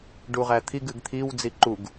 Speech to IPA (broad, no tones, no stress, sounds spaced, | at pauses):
ɖ u ʁ æ t̪ʰ i ɡ ɨ ɡ t̪ʰ i w d͡z i ǃ u ɡ